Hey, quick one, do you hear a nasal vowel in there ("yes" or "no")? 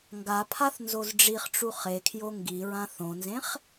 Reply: yes